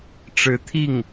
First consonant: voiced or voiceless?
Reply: voiceless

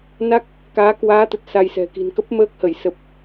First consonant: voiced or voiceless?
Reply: voiced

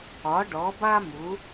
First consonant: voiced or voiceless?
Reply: voiced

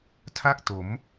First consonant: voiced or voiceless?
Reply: voiceless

